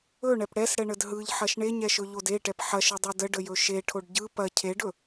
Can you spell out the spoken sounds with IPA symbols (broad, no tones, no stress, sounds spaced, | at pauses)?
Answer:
ɵ ɳ ɛ p ɽ ɛ s ɽ ɛ ɳ ə d ɦ ɯ ʎ ħ ɐ ʃ ɳ e ɲ ɛ ʃ ɵ ʎ o d e ʈ ɛ p ħ ɐ ʃ ɯ dˤ u d ə ɖ ə j ɵ ʃ e ʈʰ o ɖ ɟ ɯ p ɐ cʰ e ɖ ɵ